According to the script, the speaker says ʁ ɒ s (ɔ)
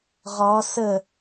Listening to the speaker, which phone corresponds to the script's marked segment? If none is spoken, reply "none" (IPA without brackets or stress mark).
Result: ə